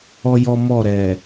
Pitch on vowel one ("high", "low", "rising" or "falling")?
high